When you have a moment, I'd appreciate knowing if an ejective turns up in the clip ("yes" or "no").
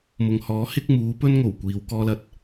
no